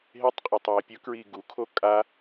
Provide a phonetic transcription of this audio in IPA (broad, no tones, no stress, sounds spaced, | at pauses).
ɦ e tˤ qʼ a tˤ j ɛ pʲ ʊ k ɹ i ɡ u kʰ o kʼ a